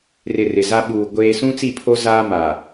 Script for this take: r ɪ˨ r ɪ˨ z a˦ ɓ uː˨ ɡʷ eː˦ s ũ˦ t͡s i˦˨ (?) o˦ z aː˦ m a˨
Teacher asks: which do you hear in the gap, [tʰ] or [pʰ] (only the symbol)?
pʰ